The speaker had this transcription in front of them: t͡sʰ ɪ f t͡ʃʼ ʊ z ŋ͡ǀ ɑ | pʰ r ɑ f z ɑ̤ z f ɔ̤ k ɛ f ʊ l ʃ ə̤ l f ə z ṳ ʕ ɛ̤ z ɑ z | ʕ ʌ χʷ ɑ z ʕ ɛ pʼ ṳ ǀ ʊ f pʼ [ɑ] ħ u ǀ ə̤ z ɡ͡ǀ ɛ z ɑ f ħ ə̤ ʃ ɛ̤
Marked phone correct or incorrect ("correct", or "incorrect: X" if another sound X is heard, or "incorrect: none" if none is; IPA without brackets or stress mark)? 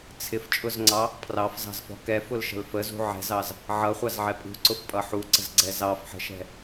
incorrect: ʌ